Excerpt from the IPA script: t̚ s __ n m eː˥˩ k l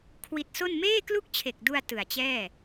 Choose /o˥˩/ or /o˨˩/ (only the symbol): o˥˩